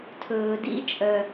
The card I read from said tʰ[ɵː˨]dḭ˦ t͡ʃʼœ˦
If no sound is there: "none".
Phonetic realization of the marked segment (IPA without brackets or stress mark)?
ɵː˨